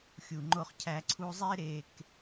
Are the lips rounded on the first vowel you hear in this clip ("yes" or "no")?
yes